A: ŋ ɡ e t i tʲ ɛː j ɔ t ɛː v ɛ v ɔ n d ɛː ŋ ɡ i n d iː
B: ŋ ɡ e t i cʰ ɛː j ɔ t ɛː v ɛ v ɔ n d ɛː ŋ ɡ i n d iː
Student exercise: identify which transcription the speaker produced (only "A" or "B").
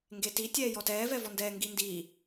A